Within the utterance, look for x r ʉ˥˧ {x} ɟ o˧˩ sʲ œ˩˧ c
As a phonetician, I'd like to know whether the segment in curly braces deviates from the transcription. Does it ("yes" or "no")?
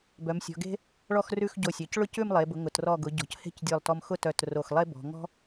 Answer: no